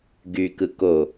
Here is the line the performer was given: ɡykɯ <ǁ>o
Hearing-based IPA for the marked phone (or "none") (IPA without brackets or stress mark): k